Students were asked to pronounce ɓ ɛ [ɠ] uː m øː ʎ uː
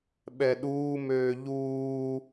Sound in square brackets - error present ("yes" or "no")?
yes